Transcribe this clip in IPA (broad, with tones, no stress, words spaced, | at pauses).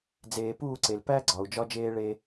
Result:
d͡zeː˨puː˦˨ǀe˨l pæ˦ɡ͡ǀɒ˨u̯ d͡ʒɒ˦d͡ʒeː˦ɭe˦